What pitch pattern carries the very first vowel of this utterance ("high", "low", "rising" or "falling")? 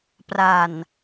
low